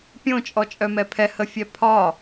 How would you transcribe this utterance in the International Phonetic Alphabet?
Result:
pʲ õ t͡ʃʼ ɔ t͡ʃʼ œ m ɛ pʰ ɛ h ə fʲ ɛ pʰ ɒ

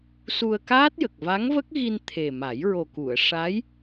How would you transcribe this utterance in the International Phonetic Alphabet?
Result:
s u˧ ə̯ k aː˦˥ t̚ j ə˨˩ k̚ v a˧˥ ŋ v ə˦˥ k̚ ɣ i˧ n t̪ʰ e˨˩ m a˨˩˦ j ɹ o˨˩ k u˨˩˨ ə̯ ʂ a˧˥ j

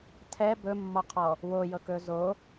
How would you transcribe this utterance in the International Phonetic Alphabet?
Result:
tʰ ɛ b ɵ mː ɔ qʰ ɔ | w o j ɤ k ɵ z o

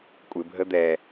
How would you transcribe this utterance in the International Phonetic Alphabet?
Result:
kʷʼ ɪ bʱ ə d̪ ɛ

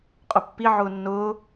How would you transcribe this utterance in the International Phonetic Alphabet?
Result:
qʼ ʊ pː i ʕ ʊː nː ʊː

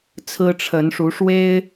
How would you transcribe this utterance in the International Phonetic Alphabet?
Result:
t͡sʰ ɹ̩˦ ʈ͡ʂʰ ə˨˦ n ʂ u˨˦ ʂ w e˦ ɪ̯

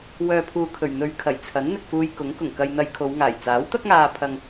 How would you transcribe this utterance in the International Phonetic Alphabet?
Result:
w œː˨ pʰ uː˨ kʰ ɵ˨˩ ɥ n̪ ɵ˨ ɥ kʰ ɐ˨˩ j t͡sʰ ɐ˨˥ n n̪ ɪ˨ k̚ f uː˧ j k ʊ˨˥ ŋ k ʊ˨˩ ŋ k ɐ˧ j n̪ ɐ˧ j kʰ o˨˧ w ŋ aː˨˩ j t͡s aː˨˥ w t̪ ɐ˥ k̚ ŋ aː˧ pʰ ɐ˧ ŋ

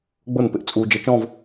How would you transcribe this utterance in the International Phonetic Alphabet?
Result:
ɡ͡b ʊː˥˩ n p ɪ˧ ʔ t͡sʼ uː˧ d͡ʒ ə˧˥ t͡ʃ ɔ̃˥˧ v

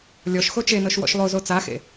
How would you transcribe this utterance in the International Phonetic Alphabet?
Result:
lʲ ɔ ʃ x o t͡ʃ e n ɤ ʃ w ɔ̰ ʃ lˠ o z o t͡s a x ḛ

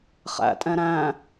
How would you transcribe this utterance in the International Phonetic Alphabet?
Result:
χ æ̰ tʼ ɛ̃ ɾ æ̃

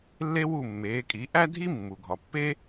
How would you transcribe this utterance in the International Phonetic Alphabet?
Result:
lː e˥ w u˥˩ mː eː˩˥ kʼ i˩˥ ʔ æ˥ dʱ i˥ mː u˩ ɡʱ ɒ˩ pː e˥

